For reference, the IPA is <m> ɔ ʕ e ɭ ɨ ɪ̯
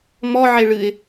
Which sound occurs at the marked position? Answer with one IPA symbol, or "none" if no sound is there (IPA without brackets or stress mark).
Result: m